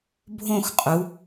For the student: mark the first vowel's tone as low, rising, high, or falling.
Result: falling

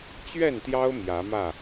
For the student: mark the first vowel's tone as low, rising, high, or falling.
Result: falling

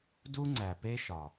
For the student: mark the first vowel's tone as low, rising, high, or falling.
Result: high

